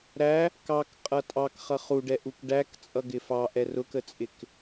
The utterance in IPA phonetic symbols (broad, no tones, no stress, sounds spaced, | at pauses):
ɾ æ | k ɑ k qʼ ʌ tʼ ɑ k χ ʌ χ u ɖ ɛ ʔ u k ɖ æ k t͡sʼ ʌ ɡ ɪ f ɑ ʔ ɛ r ʊ k ə t͡sʼ ɪ k